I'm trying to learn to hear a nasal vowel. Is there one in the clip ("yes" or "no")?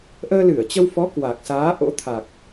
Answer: no